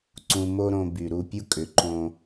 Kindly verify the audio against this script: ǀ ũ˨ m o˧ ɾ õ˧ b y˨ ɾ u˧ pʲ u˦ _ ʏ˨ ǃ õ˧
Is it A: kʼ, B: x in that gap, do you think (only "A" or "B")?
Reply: A